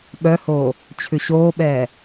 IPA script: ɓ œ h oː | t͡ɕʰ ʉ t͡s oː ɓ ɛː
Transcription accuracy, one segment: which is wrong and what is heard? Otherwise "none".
t͡s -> ɕ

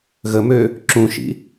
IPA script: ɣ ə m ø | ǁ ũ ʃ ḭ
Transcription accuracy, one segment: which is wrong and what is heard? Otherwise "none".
none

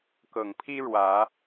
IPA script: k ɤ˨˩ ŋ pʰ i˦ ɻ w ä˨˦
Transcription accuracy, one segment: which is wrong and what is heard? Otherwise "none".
none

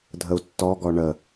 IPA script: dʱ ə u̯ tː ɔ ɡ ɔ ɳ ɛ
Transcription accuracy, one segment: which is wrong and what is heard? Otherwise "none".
ɛ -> ə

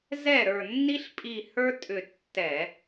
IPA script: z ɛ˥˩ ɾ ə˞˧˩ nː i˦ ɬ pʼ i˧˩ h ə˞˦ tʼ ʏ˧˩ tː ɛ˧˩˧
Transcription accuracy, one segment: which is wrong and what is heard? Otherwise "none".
none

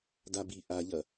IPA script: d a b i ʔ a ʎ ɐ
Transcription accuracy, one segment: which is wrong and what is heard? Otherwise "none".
none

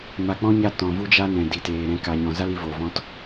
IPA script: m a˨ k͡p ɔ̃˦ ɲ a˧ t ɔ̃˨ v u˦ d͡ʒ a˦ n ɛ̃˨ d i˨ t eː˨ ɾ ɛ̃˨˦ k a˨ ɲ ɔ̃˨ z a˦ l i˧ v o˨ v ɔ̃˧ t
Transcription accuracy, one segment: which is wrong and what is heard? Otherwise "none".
none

